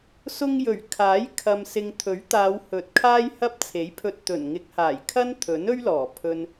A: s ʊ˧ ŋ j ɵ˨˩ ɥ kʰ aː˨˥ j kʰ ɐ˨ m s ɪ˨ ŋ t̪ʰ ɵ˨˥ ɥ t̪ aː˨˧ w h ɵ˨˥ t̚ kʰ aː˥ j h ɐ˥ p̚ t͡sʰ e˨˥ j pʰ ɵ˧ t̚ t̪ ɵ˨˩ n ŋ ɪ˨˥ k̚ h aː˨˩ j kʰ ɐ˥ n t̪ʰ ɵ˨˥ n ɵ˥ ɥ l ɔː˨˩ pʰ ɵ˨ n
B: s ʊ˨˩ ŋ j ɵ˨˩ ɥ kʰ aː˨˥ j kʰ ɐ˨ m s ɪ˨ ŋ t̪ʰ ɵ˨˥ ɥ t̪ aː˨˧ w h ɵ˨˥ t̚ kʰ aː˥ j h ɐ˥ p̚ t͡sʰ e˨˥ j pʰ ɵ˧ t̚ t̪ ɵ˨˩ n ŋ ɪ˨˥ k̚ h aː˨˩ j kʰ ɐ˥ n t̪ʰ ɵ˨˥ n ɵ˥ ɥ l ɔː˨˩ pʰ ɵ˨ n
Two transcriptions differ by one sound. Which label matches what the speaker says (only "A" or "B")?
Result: A